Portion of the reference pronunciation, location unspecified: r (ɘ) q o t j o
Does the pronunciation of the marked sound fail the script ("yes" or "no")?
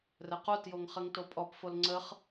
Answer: no